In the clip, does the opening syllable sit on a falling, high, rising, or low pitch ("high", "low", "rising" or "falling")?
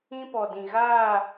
high